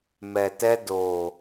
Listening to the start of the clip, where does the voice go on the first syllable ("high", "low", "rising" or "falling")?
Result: low